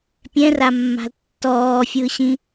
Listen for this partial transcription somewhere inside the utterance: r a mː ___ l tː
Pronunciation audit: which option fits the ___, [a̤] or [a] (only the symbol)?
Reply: a̤